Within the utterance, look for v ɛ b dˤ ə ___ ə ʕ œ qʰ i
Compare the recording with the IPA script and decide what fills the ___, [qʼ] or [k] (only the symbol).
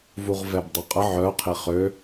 qʼ